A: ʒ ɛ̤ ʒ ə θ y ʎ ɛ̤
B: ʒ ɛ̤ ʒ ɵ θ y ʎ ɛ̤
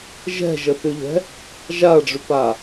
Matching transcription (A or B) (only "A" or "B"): A